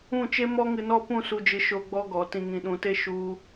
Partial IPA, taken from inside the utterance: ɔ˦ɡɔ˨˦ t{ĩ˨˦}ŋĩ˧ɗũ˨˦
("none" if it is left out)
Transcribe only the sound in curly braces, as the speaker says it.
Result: ĩ˧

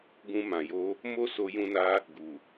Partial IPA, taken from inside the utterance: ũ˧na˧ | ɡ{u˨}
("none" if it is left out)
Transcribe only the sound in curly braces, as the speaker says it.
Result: u˨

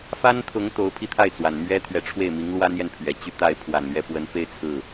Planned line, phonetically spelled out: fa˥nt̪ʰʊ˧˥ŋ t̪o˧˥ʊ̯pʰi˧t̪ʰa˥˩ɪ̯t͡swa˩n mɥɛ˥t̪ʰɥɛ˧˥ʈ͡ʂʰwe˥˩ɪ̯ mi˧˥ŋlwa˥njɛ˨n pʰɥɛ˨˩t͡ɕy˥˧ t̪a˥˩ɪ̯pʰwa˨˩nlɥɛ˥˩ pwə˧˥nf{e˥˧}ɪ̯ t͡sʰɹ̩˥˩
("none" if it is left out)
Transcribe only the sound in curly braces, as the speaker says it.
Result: e˥˧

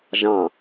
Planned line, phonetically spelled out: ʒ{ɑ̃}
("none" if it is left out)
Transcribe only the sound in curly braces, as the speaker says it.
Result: ɑ̃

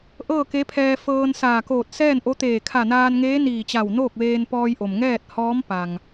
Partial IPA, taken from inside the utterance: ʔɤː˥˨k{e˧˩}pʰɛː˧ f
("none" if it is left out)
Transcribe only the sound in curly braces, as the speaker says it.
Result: e˧˥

